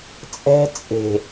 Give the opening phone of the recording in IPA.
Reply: t͡sʼ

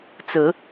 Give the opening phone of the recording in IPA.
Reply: t͡s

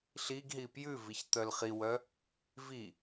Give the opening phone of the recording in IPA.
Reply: ɬ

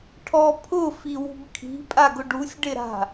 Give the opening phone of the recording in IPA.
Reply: ʈʰ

